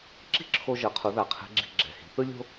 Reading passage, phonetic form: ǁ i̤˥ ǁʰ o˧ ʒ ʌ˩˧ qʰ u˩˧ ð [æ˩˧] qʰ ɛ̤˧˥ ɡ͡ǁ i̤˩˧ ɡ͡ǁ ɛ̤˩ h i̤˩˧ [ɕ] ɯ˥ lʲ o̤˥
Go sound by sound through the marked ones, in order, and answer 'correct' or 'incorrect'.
incorrect: a˩˧, incorrect: θ

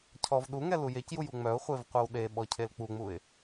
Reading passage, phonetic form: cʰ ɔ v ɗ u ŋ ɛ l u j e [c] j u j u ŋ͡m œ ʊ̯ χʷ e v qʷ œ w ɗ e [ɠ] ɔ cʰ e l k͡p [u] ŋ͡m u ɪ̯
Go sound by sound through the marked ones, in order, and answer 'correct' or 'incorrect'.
correct, incorrect: ɓ, correct

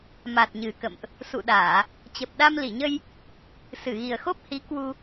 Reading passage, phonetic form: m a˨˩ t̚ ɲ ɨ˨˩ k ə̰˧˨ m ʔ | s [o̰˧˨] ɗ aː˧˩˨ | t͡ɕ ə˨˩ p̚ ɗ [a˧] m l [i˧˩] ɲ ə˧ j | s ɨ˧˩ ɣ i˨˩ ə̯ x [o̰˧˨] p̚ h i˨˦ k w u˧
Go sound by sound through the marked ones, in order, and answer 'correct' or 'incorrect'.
incorrect: ṵ˧˨, correct, correct, incorrect: o˦˥

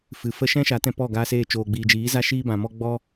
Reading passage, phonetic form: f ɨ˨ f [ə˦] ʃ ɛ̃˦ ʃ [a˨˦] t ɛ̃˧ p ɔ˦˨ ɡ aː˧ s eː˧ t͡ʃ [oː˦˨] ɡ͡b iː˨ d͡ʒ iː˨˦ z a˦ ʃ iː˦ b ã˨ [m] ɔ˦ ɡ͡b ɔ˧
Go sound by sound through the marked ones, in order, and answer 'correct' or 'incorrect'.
correct, correct, incorrect: oː˨, correct

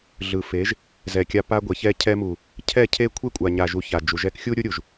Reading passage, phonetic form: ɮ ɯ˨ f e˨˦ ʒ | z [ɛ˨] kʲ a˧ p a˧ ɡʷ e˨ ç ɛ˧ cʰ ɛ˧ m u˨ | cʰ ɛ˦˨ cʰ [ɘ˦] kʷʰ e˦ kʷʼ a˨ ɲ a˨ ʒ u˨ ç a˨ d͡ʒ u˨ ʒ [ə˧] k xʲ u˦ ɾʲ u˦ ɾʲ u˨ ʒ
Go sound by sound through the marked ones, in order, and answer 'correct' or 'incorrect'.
correct, incorrect: e˦, incorrect: ɛ˧

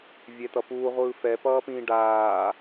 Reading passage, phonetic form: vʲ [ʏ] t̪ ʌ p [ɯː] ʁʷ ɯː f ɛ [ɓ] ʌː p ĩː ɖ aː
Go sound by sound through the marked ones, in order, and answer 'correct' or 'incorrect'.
incorrect: ɛ, incorrect: uː, incorrect: p

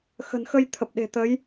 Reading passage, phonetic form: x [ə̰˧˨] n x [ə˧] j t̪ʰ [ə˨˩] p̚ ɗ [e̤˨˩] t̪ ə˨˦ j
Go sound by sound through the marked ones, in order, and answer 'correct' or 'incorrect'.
incorrect: ə̤˨˩, correct, correct, correct

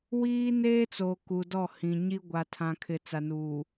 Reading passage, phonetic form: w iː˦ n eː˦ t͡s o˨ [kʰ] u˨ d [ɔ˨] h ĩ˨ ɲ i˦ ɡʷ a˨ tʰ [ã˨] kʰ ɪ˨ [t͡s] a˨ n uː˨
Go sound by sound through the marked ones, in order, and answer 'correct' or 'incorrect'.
incorrect: k, incorrect: ɔ˦˨, correct, correct

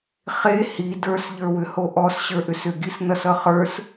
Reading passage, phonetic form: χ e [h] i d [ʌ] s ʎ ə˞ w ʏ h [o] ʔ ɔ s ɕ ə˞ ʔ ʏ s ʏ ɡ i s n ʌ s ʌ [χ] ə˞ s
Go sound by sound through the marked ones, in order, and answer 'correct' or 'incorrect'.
correct, incorrect: ə˞, correct, correct

